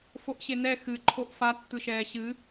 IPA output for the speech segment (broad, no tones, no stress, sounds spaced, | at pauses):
f o ʔ ɕ e n ɛ x ɨ ǃʰ o ʔ f a tː ɯ ʃ ɛː ɕ ɨ